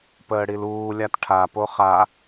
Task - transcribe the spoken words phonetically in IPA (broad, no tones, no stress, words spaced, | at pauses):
pəːɽiluːlʲat ʈʰapo χa